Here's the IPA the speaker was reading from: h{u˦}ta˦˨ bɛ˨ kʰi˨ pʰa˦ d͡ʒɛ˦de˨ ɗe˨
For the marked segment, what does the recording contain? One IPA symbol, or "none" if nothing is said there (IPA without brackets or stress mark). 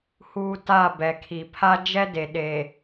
uː˦